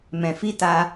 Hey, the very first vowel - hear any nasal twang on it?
yes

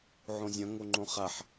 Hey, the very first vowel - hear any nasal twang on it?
yes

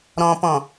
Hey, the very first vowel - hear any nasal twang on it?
yes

